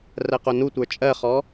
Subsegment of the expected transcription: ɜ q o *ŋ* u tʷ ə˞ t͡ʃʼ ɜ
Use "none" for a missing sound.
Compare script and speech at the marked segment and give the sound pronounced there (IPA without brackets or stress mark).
n